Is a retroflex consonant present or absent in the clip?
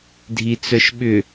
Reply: absent